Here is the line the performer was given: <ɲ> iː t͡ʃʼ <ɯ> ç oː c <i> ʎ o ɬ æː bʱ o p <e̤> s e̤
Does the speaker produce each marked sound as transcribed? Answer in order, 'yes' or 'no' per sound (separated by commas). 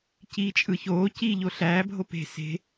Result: no, yes, no, yes